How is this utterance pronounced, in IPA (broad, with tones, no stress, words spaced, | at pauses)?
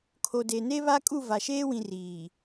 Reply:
kʰo˨de˨ne˦ βa˦kʼu˦˨va˨ ʃeː˦wĩ˨ riː˨